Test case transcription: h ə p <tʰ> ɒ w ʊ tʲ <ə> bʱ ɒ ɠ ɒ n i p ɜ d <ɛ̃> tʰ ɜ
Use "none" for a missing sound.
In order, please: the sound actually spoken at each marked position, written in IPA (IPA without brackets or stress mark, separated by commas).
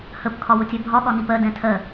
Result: kʰ, ɛ, ɛ̃